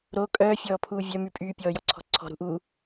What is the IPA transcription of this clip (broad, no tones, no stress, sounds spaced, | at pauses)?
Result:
ɾ o kʼ œː fʲ ɔː pʰ uː vʲ œ m y pʼ yː pʲ ɔː j ɔ ǀʰ ɔ̤ ǀʰ ɔ̤ ɾ ṳ ʔ uː